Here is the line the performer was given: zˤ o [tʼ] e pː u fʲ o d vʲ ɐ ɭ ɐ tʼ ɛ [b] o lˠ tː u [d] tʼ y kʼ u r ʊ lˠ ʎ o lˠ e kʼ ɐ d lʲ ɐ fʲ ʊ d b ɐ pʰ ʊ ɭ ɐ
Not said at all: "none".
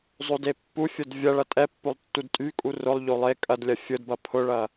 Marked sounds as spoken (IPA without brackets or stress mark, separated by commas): d, pː, d